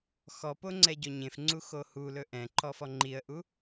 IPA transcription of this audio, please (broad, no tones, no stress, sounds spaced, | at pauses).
x ɔ p o ŋ͡ǀ ɛ ɟ ɔ ɲ ẽ f ŋ͡ǀ u x o h u l ɵ ʔ ɛ̃ ǃ ɔ f ɔ ŋ͡ǃ i ə̯ ʔ u